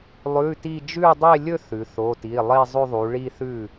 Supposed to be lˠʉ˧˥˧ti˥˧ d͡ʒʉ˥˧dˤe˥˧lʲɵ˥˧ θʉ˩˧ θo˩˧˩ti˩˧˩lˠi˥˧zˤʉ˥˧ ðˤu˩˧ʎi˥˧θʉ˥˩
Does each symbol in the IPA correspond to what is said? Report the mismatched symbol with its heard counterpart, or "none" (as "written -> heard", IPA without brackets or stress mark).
ʎ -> ɭ